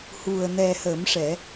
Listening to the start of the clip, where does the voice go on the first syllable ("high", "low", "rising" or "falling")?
low